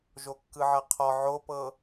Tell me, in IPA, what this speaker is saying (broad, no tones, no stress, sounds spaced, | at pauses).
ʒ o kː ɯ ʕ ɤ qʰ ɔ ʕ o p ɤ